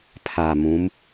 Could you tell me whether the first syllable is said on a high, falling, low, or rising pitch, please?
low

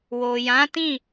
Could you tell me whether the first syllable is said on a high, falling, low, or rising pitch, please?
low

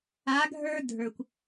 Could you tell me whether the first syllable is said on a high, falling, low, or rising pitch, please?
rising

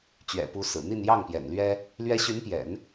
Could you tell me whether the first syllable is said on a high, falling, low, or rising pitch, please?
low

